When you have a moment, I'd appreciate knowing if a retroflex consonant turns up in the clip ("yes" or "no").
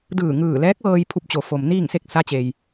no